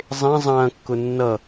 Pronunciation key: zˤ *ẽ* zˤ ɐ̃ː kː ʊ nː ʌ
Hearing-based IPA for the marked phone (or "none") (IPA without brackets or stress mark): ẽ